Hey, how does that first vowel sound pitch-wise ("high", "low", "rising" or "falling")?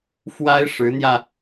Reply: high